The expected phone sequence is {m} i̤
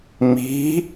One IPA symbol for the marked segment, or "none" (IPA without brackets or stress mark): m